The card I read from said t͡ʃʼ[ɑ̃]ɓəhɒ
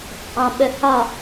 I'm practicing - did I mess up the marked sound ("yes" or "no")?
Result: no